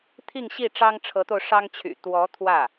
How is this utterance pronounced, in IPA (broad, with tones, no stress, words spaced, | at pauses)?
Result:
t̪ʰi˥˧ŋɕi˥˩ ʈ͡ʂɑ˥ŋ ʈ͡ʂʰɤ˧˥t̪o˧ʊ̯ ʂɑ˥ŋt͡ɕʰy̰˨˩ t̪wɔ˧˥ t̪ʰwä˥˩